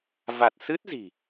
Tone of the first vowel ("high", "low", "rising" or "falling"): low